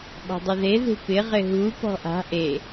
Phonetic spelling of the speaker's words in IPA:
ɓ ɔ̤ dˤ ʊ ð e ð ṳ p ɪ ʁ ɪ ɦ u p ɔ̤ ʔ a̤ ʔ e

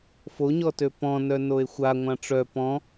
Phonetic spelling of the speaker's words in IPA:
f o ɲ ɔ t ø p ɔ̃ n œ n o e̯ xʷ a ŋʷ ã ʈ͡ʂ œ p ɔ̃

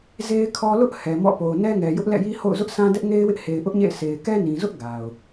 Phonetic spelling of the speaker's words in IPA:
z e˦ ɪ̯ kʰ ɔ˦ l ʊ˦ ʔ h ɛ˨ m ɔ̰˦˨ p o˨ ʊ̯ n ɛ˦ ŋ ɛ˨ j ʊ˦ ʔ l ɛ̰˦˨ j i˦ h o̰˦˨ ʊ̯ z ʊ˦ ʔ sʰ ã˦ d ɛ˦ ʔ ŋ e˦ ɪ̯ w ɪ˦ ʔ h e˨ ɪ̯ ʔ ʊ˦ ʔ ɲ ḛ˦˨ ɪ̯ sʰ e˨ ɪ̯ k ɛ˦ n ĩ˨ z ʊ˦ ʔ ɡ a˨ ʊ̯

